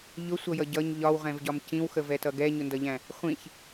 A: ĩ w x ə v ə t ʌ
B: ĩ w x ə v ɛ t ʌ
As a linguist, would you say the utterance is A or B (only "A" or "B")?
B